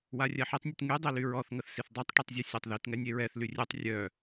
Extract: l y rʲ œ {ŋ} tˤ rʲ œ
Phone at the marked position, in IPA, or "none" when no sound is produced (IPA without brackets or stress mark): none